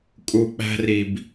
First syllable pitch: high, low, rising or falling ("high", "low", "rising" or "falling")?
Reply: low